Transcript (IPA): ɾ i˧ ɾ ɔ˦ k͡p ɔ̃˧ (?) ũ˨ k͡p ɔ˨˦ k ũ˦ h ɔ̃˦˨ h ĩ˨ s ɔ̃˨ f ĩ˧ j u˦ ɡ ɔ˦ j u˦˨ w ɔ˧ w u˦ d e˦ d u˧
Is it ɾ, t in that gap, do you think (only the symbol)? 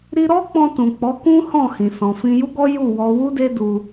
t